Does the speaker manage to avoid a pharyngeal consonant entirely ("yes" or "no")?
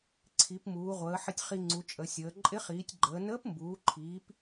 no